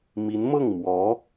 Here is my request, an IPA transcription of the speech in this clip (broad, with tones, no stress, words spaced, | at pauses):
mi˧˥nmɤ˥˩ŋ mwɔ˧˥